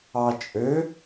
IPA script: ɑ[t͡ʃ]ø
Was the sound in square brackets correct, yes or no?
no